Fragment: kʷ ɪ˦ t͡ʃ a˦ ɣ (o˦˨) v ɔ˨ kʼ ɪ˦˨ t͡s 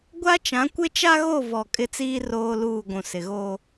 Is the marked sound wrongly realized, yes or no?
no